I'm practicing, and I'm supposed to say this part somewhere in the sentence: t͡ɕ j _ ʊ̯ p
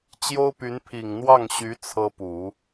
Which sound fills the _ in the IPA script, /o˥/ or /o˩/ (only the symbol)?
o˥